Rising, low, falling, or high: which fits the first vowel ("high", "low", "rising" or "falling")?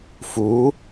rising